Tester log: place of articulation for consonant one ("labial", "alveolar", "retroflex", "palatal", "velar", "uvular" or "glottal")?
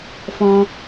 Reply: labial